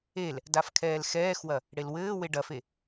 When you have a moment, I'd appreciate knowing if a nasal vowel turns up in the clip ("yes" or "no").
no